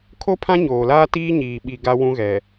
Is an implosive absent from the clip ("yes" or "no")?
no